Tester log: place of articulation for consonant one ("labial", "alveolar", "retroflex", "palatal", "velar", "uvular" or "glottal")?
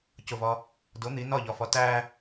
palatal